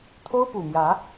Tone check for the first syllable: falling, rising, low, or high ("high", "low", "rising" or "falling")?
high